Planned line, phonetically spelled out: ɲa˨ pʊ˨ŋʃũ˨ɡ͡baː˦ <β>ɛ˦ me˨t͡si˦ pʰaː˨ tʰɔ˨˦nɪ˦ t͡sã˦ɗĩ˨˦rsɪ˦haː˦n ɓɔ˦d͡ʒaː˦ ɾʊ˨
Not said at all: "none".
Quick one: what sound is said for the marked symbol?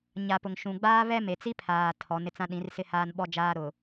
β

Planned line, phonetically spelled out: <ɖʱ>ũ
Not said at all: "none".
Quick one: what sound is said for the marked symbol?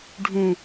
ɖʱ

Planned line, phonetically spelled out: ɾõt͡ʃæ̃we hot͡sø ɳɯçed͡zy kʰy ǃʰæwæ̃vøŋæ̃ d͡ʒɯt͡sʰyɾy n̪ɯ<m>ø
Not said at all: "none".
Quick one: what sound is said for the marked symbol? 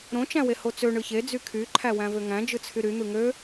ŋ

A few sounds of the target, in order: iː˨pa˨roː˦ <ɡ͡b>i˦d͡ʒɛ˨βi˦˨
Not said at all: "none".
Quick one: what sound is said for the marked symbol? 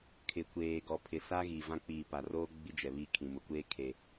ɡ͡b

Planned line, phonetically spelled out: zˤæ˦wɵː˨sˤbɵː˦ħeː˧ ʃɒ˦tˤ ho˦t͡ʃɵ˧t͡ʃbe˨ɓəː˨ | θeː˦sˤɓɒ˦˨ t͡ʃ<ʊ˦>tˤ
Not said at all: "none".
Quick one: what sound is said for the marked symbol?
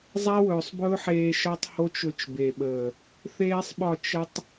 ə˦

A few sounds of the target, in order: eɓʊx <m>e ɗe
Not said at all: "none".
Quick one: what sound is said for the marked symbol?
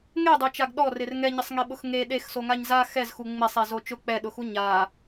ŋ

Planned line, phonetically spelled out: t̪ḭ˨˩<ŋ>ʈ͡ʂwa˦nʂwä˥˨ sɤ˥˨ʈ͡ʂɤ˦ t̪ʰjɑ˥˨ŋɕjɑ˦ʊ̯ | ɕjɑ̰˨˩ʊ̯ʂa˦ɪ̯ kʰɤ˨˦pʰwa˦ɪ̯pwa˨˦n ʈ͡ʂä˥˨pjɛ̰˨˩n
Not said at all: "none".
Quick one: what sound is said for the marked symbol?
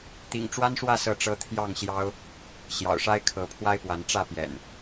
ŋ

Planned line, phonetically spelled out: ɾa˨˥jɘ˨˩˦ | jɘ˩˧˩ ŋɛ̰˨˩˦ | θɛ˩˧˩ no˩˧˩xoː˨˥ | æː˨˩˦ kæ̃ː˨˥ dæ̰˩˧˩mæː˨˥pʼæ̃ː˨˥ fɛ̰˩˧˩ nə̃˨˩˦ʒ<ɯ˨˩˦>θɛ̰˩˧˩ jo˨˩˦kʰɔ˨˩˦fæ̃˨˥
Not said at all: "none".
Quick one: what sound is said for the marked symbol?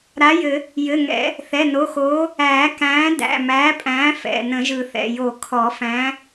ɯ˨˩˦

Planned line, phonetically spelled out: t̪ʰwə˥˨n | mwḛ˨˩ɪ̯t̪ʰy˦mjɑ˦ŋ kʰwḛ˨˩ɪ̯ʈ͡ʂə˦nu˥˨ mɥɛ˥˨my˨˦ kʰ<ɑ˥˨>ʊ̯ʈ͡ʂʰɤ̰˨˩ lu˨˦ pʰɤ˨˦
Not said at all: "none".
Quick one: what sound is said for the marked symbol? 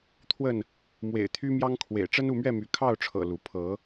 ɑ˥˨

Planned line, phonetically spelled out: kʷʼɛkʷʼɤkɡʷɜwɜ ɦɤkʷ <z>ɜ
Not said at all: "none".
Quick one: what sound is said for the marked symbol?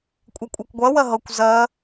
z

